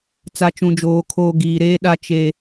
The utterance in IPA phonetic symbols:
t͡s a˨ t͡ʃ ũ˨ d͡ʒ oː˨ kʰ oː˨ ɡ iː˨ ɾ eː˦ ɗ a˦ t͡ʃ e˦

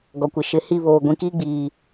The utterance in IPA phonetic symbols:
ɡ ɔ˨ kʷ ɪ˨ ʃ ɪ˨ h i˦˨ β oː˨ ɡʷ ĩ˨ k iː˦ ɡ͡b iː˨

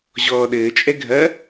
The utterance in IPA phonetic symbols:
ʑ ɔː ɗ ɘː t͡ʃʼ ɛ ɡʱ ɐ

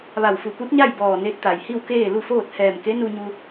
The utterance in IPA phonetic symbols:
ʋ a˧˩ w f u˧˩ p u˧˥ t̚ ɲ a˥˨ j b ɔː˧˩ n e˧ t̚ t̪ a˩ j h i˥˨ w k eː˥˨ l u˥˨ f oː˥˨ t̚ h ɛː˧˩ m k e˧˥ n u˧ ɲ u˧

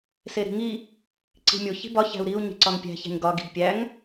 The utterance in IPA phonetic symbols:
s e ɾ i̤ ŋ i | ǀ i̤ mʲ o ç i̤ b ɒ ç æ̤ u̯ ɾ i u̯ ɲ i̤ ǀ ɒ ŋ pʲ æ̤ ç æ̤ ɲ ɡ ɒ ɡ i̤ ɡ pʲ æ ŋ

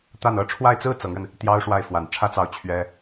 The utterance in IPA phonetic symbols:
t̪ a˥˩ n ɤ˧˥ ʈ͡ʂʰ w a˥˩ ɪ̯ t͡s ɹ̩˥ t͡s ɤ˧˥ ŋ ɻ ə˧ n | t̪ j ɑ˥ ʊ̯ ʂ w a˥˩ ɪ̯ f w a˨˩ n ʈ͡ʂʰ ä˥ t͡s ɑ˥˩ ʊ̯ t͡ɕʰ ɥ ɛ˥

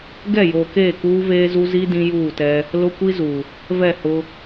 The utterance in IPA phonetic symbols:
ɡ ɛ˦˨ j oː˨ k eː˦˨ k uː˦ v eː˦ z u˦ z i˦ d ĩ˦ j uː˦˨ t ɛ˦ | l ʊ˦ kʷ i˦ z u˨ | v ɛ˦˨ h ʊ˦

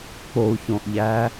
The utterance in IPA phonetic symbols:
k͡p o u̯ ç õ ʔ ʎ æ

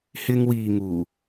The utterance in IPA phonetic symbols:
h ɪ˧ ŋ w iː˨ ŋ uː˨˩

